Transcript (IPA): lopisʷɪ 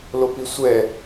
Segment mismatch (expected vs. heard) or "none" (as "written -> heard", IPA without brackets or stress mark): ɪ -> ɛ